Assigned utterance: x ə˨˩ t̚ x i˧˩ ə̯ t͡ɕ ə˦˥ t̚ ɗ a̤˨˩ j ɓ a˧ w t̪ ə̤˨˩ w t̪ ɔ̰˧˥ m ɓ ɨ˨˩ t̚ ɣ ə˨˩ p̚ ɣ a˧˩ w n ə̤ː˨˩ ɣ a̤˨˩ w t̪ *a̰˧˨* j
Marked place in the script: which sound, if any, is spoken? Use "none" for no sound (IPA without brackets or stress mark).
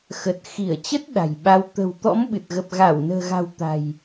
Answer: a̤˨˩